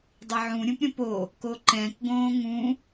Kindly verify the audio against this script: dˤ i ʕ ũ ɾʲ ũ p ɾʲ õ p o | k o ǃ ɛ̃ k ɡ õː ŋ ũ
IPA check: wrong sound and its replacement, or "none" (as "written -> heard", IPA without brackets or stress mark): none